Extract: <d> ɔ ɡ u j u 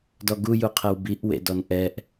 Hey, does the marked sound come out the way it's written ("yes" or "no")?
yes